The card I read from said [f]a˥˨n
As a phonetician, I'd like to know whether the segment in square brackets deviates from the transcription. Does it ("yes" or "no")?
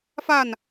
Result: no